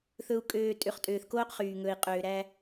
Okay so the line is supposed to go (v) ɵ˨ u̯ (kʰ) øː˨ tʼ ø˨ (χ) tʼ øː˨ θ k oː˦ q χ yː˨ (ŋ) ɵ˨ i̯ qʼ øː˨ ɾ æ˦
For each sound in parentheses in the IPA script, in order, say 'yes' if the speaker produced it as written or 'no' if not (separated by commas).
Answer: no, no, yes, yes